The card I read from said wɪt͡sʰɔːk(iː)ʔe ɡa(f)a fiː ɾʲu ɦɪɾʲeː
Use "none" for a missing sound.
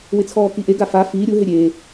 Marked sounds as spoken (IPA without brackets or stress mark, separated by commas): i, f